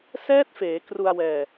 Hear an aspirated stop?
no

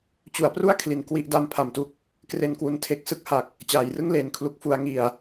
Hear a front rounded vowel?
no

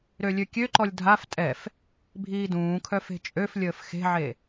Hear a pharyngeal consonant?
yes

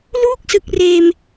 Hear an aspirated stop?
no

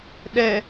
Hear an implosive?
yes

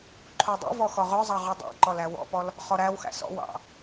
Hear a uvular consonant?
yes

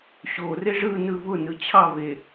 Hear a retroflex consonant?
yes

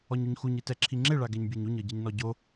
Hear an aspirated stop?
yes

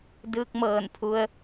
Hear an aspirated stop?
yes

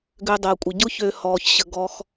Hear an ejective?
yes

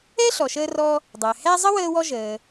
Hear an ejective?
no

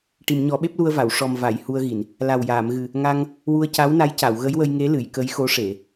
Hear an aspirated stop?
no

